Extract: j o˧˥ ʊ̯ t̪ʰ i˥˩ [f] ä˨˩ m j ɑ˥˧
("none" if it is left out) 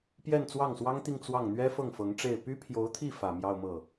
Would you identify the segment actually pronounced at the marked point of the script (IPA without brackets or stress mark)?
f